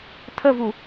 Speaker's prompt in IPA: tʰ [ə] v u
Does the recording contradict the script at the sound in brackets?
no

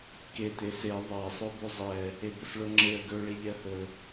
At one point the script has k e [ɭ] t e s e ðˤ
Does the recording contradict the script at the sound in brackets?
yes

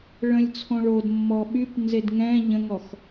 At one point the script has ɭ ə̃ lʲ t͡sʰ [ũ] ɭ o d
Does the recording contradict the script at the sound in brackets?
yes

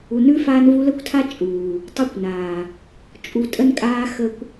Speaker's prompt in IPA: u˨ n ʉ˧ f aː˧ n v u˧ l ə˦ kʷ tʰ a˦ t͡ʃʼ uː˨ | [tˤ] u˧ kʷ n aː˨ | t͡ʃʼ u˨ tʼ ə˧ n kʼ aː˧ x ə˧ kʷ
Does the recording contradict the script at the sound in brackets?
no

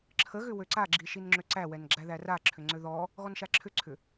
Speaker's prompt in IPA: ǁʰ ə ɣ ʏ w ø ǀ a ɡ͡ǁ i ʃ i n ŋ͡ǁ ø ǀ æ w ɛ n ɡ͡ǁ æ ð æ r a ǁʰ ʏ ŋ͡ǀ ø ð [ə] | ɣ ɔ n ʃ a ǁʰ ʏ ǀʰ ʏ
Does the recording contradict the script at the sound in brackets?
yes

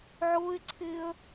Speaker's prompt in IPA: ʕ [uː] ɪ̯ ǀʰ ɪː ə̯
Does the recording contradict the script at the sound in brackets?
yes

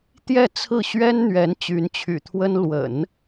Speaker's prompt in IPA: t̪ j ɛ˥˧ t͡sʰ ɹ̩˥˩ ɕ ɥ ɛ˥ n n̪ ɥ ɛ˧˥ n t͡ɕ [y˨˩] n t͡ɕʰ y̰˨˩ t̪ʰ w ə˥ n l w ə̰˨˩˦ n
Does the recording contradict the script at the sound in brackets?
yes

